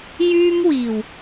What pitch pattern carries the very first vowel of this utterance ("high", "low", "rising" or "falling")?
high